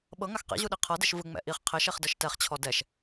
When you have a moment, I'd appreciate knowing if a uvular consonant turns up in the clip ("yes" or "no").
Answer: yes